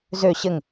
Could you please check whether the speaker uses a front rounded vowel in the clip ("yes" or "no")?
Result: yes